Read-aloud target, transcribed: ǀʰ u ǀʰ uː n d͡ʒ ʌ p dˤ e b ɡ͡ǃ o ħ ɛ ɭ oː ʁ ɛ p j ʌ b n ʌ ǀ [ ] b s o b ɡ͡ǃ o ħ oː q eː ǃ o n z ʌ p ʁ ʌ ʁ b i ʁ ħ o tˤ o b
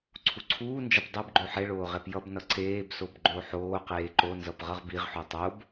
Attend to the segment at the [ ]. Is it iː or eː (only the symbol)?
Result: eː